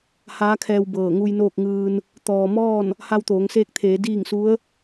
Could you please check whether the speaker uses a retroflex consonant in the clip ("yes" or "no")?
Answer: no